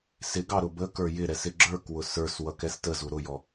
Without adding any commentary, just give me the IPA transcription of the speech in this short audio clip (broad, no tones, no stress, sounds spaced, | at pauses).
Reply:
s ɪ ɡ ɑ ɾ ʊ b ə k ə˞ j ɪ ɾ ɛ s ɪ ɡ͡ǁ ə˞ k w ʊ s ə˞ s w ʌ k ɛ s t ə z u ɾ ʊ j ɔ